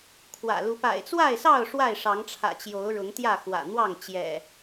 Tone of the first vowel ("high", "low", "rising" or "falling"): low